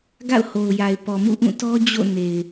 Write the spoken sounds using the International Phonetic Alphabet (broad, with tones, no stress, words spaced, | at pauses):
ɡa̰˦˨ʊ̯ho˨ʊ̯ja˨ɪ̯ pɔ˨mṵ˦˨ʔũ˦˨tɔ˦ d͡ʑo̰˦˨ ne˨ɪ̯